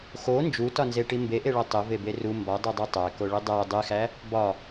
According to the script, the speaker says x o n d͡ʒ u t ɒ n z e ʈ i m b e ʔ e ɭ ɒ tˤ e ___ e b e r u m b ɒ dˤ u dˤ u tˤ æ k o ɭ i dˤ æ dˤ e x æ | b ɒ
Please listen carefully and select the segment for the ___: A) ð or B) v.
B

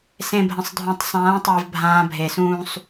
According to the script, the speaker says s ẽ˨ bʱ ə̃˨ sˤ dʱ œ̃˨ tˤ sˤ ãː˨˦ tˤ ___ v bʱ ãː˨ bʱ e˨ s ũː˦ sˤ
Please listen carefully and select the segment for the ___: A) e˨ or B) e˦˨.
A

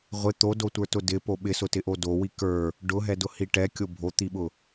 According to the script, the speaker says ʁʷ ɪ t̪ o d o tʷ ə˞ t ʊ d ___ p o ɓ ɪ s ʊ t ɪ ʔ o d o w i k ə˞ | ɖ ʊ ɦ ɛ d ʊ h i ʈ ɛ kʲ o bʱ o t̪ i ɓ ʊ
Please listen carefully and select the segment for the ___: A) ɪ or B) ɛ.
A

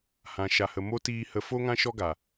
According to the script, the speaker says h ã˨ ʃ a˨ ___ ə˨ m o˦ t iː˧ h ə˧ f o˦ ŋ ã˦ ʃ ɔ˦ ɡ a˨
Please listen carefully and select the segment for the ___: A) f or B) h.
B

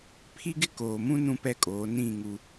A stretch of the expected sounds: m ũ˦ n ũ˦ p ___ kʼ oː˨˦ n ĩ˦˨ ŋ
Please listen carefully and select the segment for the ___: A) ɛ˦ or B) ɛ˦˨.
B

